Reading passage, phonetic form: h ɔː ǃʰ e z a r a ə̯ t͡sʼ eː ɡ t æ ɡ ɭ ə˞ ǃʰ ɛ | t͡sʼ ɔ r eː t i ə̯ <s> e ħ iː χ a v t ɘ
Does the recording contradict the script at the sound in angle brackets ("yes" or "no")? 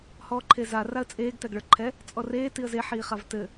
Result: yes